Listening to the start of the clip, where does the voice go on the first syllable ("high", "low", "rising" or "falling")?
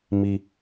low